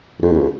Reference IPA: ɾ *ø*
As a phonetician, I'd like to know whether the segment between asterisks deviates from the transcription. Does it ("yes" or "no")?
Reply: no